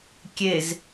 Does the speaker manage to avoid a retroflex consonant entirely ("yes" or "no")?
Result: yes